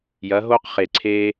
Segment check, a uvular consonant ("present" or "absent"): present